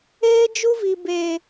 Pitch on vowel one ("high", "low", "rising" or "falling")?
high